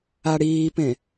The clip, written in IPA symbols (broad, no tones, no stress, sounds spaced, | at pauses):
a ɽ iː p ẽ